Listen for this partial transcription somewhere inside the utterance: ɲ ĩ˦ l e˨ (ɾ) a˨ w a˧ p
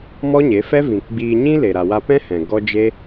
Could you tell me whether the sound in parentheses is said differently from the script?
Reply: no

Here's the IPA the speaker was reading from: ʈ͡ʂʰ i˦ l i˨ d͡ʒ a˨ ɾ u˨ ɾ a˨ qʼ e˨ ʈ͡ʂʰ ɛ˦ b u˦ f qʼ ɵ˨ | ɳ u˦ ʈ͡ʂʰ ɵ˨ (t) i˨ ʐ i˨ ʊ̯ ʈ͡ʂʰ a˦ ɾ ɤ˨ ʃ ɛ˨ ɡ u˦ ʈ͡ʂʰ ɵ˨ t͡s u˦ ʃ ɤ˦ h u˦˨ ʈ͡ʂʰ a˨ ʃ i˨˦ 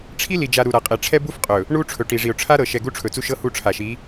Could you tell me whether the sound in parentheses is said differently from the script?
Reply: yes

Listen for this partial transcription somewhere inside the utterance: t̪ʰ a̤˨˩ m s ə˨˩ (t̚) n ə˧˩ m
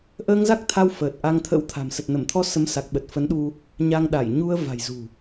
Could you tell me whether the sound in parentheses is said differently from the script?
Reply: no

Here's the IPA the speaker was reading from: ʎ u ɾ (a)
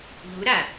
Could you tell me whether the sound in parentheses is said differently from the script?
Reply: no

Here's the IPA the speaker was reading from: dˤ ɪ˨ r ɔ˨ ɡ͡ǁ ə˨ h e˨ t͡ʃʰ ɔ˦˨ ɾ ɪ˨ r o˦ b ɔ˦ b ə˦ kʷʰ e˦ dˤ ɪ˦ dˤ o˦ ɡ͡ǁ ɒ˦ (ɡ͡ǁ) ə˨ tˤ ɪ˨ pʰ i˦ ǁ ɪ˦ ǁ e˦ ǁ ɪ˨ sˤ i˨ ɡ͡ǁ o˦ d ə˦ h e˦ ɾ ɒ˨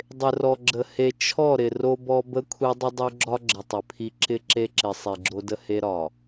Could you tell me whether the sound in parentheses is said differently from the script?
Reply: no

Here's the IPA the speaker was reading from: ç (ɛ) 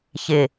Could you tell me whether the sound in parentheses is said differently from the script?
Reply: yes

